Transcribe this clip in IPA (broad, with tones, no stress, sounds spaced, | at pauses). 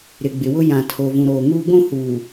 ɾ ɪ˨ ɡ͡b ɪ˨ w ʊ˦ j ã˨ tʰ o˨ v ũ˨ ɾ oː˨ ŋ uː˦ ɡʷ ũ˦˨ h uː˨